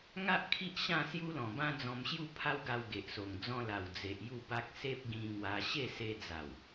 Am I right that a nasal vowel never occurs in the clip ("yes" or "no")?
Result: no